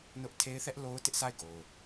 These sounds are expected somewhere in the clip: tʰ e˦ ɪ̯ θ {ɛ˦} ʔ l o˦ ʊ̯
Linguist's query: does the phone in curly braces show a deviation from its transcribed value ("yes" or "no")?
no